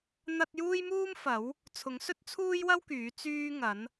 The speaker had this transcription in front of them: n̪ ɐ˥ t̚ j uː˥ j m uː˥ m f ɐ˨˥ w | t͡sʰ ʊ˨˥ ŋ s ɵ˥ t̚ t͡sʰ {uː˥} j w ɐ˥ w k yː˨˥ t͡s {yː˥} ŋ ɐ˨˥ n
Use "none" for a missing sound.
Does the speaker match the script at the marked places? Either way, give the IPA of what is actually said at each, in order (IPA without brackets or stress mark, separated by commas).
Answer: uː˥, yː˥